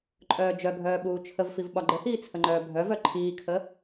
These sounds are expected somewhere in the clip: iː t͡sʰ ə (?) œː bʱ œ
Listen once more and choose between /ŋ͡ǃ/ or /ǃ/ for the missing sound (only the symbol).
ŋ͡ǃ